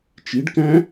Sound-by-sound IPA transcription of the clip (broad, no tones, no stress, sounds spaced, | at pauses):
t͡ʃ i ɖ k æ̃